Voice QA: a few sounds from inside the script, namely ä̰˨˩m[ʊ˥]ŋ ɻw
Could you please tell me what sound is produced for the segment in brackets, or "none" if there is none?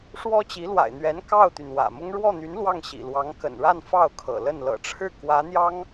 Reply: ʊ˥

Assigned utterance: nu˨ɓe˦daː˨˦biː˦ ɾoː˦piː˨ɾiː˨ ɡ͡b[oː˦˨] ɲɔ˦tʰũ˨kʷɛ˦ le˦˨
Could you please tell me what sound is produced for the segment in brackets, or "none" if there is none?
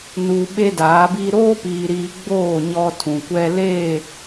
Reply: oː˦˨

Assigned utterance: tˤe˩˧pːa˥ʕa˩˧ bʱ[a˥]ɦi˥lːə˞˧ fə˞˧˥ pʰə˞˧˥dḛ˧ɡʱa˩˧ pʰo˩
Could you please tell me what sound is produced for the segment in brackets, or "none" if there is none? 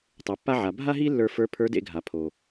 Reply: a˥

